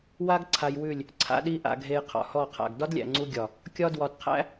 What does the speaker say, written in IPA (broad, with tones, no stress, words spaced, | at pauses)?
wa˦ɡ ǀʰa˧jwʉ˦˨lʲ | ǀʰa̰˦ɗi˦ʔa̰˧ɡʱe˧j qʰɔ̰˨hɔ˦˨qʰa̰˨ɡ dɒ˦dlʲæ̰˨ŋ͡ǀu˧ɡʲɒ˨ | kʲɒ˦dwɒ˧d qʰæ̰˦